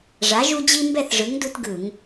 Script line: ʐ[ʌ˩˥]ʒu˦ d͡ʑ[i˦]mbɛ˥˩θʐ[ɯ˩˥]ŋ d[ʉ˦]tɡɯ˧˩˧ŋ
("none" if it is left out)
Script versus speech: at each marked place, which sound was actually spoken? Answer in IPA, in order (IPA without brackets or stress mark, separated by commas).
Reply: a˩˥, i˦, ɯ˩˥, u˦